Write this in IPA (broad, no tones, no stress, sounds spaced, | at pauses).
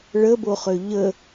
ɭ ə b o χ ø ʎ ə